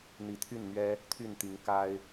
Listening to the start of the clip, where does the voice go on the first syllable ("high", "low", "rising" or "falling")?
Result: rising